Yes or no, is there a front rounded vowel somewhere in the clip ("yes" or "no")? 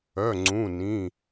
yes